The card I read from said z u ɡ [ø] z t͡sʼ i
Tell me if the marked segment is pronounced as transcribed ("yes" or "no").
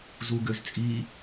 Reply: yes